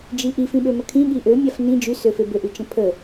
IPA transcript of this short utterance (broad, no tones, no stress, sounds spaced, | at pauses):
d͡ʒ i ʔ i f ĩ ɓ ø m ə kʰ ĩ ɠ i ʔ ø mʲ a f n ĩ d͡ʒ y s ø f e b ø ʔ y t͡ʃ ə̃ pʰ ə